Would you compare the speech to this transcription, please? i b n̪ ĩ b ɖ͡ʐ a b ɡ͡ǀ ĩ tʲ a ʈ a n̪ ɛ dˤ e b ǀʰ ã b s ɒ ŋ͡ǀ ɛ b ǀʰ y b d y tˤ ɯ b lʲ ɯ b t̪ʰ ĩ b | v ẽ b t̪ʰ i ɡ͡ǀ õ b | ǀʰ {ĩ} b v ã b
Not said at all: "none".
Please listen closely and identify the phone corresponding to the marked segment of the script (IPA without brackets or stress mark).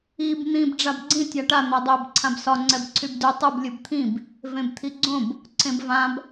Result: ẽ